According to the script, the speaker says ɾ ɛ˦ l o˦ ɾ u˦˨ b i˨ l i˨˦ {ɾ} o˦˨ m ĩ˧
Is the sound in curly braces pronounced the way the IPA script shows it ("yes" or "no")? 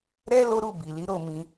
yes